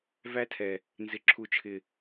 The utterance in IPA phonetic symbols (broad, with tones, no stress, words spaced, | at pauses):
væ˦tʰɛ˨ | nzɪ˨ǁʰu˨t͡ʃʰɪ˨